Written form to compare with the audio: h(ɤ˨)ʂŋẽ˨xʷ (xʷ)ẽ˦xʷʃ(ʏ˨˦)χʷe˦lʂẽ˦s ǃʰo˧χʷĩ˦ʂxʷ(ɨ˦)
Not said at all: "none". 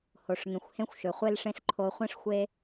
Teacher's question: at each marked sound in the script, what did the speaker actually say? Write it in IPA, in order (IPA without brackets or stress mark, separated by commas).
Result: o˨, h, ʏ˨, e˦